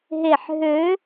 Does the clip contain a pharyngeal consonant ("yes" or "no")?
yes